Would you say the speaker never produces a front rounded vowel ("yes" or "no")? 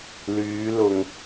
no